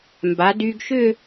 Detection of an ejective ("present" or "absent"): absent